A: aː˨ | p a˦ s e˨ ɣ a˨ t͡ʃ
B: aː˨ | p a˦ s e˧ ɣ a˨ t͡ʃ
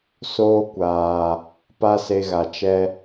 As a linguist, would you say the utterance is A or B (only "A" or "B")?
B